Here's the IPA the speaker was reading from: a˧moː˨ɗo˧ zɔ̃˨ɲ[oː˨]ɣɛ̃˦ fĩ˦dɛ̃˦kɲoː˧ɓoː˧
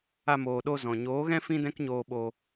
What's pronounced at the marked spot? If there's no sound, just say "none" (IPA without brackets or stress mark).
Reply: oː˨˦